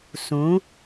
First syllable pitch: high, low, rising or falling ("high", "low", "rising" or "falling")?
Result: rising